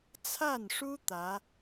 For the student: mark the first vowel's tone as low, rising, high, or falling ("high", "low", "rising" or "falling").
falling